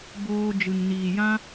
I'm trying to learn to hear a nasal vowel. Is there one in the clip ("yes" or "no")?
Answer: yes